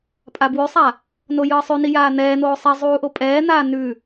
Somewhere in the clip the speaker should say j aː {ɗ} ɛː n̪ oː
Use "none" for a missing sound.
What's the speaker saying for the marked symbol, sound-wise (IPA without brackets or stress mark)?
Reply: n̪